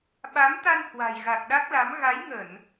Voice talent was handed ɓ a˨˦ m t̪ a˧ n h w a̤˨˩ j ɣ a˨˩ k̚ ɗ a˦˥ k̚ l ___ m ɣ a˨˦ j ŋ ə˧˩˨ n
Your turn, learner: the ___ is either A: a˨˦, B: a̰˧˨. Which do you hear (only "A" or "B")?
A